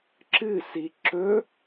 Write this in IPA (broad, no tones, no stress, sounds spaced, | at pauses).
ǁ ɨ s i ǁ ɵ